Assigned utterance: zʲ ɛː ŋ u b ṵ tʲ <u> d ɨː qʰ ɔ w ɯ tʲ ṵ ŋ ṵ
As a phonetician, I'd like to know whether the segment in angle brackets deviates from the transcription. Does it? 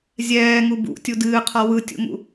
no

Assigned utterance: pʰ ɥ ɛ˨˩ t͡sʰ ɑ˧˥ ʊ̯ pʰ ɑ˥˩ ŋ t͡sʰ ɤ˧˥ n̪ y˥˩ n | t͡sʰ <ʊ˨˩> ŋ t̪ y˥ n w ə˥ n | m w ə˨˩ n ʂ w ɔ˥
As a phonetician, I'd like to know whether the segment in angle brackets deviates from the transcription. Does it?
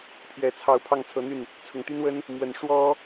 no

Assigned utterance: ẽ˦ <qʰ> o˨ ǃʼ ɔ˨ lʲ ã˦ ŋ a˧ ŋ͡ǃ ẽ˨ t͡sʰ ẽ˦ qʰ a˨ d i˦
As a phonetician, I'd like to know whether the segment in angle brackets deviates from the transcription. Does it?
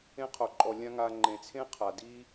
no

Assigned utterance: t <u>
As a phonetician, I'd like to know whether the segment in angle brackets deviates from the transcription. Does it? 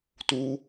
no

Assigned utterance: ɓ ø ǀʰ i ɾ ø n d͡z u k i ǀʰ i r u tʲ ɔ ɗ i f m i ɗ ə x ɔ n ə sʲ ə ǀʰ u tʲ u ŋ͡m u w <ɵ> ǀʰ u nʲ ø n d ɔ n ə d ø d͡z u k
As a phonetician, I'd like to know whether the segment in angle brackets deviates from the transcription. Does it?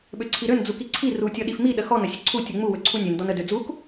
yes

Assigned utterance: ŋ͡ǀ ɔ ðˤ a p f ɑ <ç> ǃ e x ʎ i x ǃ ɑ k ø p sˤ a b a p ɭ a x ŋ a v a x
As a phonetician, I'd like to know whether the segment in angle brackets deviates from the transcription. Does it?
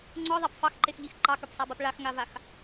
yes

